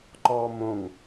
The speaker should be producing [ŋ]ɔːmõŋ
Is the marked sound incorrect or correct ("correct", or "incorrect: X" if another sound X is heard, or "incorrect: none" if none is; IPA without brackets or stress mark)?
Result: incorrect: ǃ